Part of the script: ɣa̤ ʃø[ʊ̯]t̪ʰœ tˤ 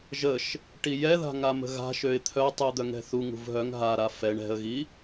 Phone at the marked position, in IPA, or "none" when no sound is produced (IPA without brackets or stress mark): ɪ̯